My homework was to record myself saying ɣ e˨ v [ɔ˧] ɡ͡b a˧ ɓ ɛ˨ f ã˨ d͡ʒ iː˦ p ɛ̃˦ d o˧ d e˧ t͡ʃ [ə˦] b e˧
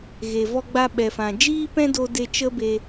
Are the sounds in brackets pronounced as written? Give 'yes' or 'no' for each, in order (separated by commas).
yes, yes